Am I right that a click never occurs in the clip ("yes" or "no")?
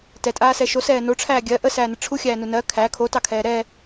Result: yes